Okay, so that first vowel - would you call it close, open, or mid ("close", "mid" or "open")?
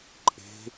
mid